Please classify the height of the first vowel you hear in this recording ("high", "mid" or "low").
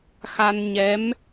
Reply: low